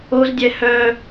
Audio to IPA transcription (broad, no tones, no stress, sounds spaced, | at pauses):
o z dʲ ɛ h œ